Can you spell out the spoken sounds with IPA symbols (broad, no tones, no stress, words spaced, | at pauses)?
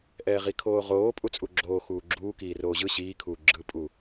ʔɛːʁikʰoːʁoː pʼut͡sʼuɡ͡ǁoː xuːɡ͡ǁuː kiːroːʑɯ ɕiːkʰuː ɡ͡ǁɯpʼu